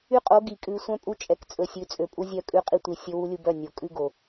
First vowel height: high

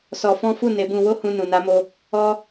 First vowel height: mid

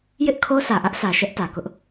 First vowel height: high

